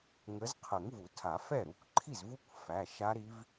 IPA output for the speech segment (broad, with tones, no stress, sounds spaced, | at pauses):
ŋ ə˨˦ z qʰ ə˨˩˦ ŋ v u˨˩˦ tʰ a˨˩˦ f ɛ˥˩ ɾ u˩˧˩ kʷ ǃʰ i˥˩ z v u˦˥ kʷ f æ˩˧˩ ʃ a˦˥ ɾ i˦˥ v